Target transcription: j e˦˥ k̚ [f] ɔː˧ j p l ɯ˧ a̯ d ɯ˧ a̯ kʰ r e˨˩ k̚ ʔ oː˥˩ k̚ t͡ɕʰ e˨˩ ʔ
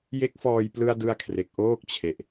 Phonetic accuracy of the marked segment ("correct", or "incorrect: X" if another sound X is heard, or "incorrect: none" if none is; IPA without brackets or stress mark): correct